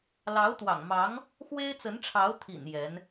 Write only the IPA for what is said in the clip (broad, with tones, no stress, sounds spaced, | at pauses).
l ɑ˧˥ ʊ̯ t̪ w ɑ̰˨˩ ŋ m ɑ˧˥ ŋ | x w e˥ ɪ̯ t͡s ə˧˥ n ʈ͡ʂʰ ɑ˧˥ ʊ̯ t̪ʰ ḭ˨˩ n j ɛ˧˥ n